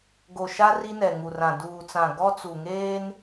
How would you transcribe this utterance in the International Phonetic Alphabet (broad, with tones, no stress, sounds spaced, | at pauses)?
ɡ o˨ ʃ a˦ r i˦ n ɛ˨ ŋ u˨ r ã˨ d uː˨ t͡s ã˨ ɡ ɔ˦ t͡s u˨ ŋ eː˦ n